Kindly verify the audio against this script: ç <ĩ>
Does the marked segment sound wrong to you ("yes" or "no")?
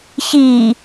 yes